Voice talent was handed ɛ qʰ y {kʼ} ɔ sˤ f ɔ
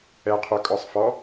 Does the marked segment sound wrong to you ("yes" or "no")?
no